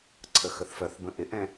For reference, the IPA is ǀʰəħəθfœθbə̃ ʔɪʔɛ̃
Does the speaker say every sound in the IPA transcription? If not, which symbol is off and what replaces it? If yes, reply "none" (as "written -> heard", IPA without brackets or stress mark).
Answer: ħ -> x